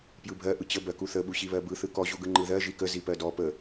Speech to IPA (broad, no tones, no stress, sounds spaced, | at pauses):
p j ɯ bʱ ɜ ʔ ɯ t͡ɕ ə b ɜ k u θ ə ɓ u ɕ i β ɜ b ɯ θ ɯ k ɔ ʑ u ɡ ɯ ŋ͡ǃ ɯ ð ɜ ʒ i k ə z i p ɜ d ɔ p ə